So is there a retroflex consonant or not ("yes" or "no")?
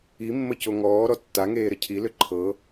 no